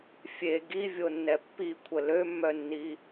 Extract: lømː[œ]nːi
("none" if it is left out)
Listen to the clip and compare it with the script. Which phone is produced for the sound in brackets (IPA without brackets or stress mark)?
œ